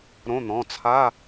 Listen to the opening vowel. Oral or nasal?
nasal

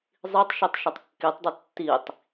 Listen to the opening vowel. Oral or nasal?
oral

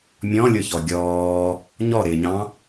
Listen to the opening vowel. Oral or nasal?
nasal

